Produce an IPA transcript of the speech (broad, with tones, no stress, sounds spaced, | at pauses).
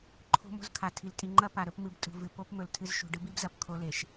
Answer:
ǃʰ o̤˦ m o̤˦ z kʰ a˨ tʰ i˨ l tʼ i˨ ŋ͡ǃ ɐ˦ p a˨ ɾ ɵ˦ p m ɨ˨˦ b tʼ ṳ˨ v ɨ˨ p o˦ p m ɵ˨ l tʰ ɨ˦ z ʃ ṳ˨ ɖ ɨ˦ b i˦ b z ɐ˨ p kʰ o˦ l e˨ ʃ